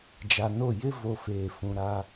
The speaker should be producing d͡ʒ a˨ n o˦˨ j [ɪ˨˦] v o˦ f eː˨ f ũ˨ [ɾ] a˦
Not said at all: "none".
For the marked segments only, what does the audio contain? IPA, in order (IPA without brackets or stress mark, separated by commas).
ɪ˦, ɾ